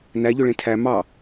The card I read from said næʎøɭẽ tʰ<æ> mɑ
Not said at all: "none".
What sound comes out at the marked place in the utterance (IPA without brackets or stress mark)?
æ